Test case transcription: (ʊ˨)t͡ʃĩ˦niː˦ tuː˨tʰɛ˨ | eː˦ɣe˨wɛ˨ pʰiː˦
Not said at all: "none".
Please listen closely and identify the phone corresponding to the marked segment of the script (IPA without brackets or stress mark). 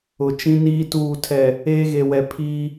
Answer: ʊ˨